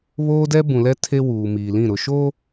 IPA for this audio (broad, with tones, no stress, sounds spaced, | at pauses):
β oː˦ d ɛ˦ b ũ˨ l ɛ˦ tʰ e˦ w uː˨ m iː˨ l ĩ˦˨ ɾ ʊ˨ ʃ o˦